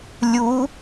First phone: lʲ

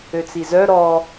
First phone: ø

